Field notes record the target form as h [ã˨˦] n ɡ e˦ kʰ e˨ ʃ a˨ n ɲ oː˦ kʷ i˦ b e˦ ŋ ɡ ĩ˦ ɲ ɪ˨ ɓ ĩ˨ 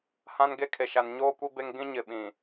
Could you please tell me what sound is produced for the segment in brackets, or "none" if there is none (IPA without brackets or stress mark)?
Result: ã˦